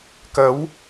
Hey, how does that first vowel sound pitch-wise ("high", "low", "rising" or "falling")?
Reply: rising